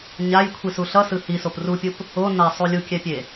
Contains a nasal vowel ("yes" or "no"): no